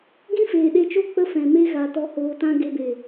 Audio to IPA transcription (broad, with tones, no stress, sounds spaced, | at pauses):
ɡ ĩ˦ f eː˨ ɗ e˧ t͡ʃ o˦ k͡p ə˧ f ɛ̃˨ m e˧ ɣ a˨ t ɔ˧ h oː˧ t ã˦ ɡ e˧ b e˨